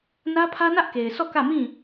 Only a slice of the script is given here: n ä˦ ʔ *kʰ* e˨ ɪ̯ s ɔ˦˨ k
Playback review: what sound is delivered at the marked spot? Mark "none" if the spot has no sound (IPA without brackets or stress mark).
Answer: k